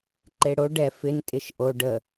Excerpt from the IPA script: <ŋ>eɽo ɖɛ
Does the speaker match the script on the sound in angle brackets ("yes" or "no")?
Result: no